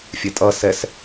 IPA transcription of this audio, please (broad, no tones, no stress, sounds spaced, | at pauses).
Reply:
fʲ ɛ tʼ ʌ s ɛ s